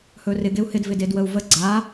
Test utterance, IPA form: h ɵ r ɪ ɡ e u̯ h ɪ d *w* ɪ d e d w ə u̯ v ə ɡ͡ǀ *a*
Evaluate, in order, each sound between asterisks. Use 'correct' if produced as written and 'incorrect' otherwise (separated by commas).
incorrect, correct